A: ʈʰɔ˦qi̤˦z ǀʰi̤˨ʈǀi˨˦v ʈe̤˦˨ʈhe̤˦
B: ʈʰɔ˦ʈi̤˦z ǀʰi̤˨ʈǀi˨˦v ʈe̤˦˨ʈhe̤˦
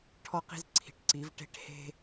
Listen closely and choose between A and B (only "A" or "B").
A